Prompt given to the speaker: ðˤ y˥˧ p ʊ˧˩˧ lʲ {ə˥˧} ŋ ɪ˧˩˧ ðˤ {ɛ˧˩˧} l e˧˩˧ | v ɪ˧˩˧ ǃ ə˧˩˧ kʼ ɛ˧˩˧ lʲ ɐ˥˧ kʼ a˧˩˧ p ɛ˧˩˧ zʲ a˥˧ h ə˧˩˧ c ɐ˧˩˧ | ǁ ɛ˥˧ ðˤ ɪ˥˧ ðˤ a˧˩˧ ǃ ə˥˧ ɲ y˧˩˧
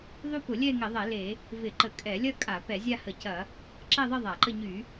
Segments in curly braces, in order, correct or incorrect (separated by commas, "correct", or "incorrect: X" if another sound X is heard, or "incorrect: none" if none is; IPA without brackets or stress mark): incorrect: ɛ˥˧, correct